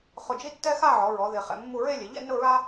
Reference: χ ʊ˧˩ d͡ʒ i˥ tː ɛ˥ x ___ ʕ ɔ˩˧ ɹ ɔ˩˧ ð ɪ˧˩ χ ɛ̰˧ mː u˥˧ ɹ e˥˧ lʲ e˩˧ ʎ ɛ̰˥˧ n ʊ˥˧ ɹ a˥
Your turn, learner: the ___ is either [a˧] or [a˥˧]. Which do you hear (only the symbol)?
a˥˧